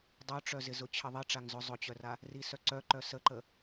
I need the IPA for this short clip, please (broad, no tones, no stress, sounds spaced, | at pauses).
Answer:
dˤ œ ʈ͡ʂ œ z ɪ z ʊ t͡ɕʰ ə ðˤ i ʈ͡ʂ a ŋ z ʊ zˤ ʊ t͡ɕ œ r a | r i s œ ǀ œ ǃ œ s ə ǃ ə